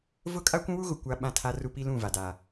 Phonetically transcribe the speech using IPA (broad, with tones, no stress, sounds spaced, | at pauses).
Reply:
v ʊ˦ kʼ a˦ kʷ ũ˦ w u˦ ɣ ʊ˨ kʷ a˦ ɓ ã˦ tʰ a˦ r u˦ p i˦ l ũ˦˨ v a˨ d a˨